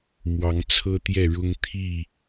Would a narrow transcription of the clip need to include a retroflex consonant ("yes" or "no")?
yes